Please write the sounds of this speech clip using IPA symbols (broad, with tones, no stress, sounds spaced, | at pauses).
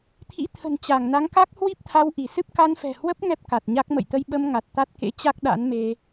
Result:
t̪ʰ ḭ˧˥ t̪ʰ ə̤˨˩ n t͡ɕ a˧˩ ŋ n a˨˦ ŋ k a˦˥ k̚ h w i˦˥ p̚ t̪ʰ a˧ w ʔ i˧˩ s ɨ˦˥ p̚ k a˧ n f ɛ̤˨˩ h w ə˦˥ p̚ ŋ ɛ˦˥ p̚ k a˨˩ t̚ ɲ a˦˥ k̚ m ə̰˧˨ j t̪ ə˧ j ɓ ə˧ m ŋ a˨˩ t̚ t̪ a˦˥ t̚ k ḛ˧˥ t͡ɕ a˦˥ k̚ ɗ a̰˧˥ n m e˧